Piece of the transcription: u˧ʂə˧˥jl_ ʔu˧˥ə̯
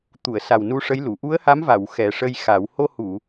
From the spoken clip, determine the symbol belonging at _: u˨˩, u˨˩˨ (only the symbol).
u˨˩˨